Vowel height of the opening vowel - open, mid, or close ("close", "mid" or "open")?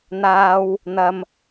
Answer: open